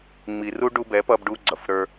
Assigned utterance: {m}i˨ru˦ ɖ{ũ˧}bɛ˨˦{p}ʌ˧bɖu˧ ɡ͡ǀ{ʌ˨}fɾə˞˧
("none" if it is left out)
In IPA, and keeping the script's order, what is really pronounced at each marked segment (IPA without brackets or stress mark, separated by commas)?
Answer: ŋ͡m, u˧, p, ʌ˨